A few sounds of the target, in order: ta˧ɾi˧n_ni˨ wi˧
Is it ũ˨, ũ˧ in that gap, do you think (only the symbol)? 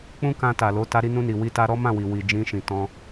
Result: ũ˧